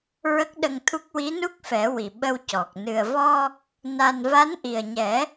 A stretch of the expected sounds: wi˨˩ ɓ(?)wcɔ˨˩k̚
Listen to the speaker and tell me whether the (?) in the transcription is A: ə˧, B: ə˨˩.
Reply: A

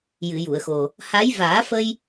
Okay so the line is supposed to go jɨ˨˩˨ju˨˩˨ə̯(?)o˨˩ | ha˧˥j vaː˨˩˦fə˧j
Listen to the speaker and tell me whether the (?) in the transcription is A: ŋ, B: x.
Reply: B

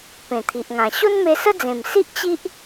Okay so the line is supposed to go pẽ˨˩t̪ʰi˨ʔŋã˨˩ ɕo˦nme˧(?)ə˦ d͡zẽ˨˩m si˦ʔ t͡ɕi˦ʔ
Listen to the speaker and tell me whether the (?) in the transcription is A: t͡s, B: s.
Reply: B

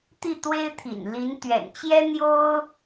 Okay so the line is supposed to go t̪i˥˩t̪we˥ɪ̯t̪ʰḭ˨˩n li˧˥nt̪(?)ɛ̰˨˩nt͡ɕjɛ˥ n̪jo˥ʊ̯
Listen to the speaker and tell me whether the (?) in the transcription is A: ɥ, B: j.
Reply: A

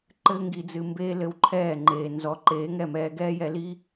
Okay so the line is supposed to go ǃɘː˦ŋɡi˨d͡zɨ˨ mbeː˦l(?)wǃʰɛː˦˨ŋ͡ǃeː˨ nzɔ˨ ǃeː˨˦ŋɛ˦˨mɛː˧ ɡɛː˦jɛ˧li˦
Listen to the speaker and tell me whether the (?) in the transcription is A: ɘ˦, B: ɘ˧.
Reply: B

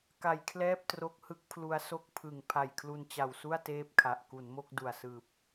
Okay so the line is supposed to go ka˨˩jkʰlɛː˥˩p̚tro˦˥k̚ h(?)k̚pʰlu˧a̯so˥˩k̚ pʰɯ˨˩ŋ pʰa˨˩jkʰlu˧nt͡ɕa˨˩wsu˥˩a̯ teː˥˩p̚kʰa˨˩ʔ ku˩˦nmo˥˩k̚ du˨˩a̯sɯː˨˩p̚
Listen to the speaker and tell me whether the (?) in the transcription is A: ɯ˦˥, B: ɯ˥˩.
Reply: A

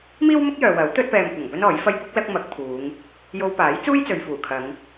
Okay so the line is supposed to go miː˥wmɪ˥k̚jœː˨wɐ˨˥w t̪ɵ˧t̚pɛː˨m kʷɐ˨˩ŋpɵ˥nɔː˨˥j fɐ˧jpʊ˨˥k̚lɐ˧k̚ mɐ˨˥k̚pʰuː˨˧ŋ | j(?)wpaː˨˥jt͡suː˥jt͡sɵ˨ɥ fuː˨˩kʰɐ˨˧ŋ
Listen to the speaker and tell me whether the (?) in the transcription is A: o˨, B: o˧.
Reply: B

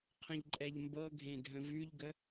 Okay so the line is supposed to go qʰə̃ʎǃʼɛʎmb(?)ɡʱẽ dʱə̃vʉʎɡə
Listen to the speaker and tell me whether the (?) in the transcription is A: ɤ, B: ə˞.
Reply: A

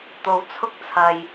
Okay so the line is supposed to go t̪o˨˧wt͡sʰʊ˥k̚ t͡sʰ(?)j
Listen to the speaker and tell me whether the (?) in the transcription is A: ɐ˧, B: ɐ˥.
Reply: A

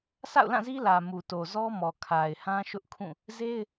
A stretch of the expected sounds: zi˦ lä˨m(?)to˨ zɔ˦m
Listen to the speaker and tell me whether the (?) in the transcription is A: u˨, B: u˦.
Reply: A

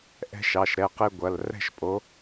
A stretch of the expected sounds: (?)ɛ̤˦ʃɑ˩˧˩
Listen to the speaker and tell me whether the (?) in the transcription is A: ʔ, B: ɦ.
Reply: A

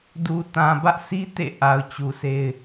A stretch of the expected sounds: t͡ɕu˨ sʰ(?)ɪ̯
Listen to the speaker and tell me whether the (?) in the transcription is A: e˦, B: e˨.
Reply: A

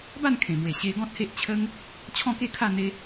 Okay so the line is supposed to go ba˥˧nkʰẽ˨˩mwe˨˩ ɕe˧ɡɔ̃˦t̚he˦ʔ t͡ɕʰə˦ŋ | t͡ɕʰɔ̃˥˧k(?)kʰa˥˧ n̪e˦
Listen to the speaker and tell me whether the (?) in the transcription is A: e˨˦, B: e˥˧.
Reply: B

